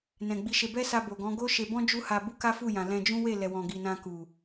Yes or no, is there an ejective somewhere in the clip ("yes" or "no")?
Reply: no